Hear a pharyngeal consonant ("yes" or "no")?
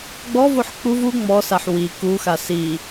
yes